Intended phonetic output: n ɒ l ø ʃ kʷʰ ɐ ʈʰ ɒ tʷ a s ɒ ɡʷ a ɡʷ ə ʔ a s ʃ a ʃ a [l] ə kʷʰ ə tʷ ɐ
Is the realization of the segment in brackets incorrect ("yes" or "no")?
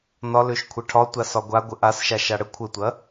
yes